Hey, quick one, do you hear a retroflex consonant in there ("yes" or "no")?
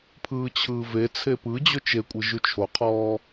no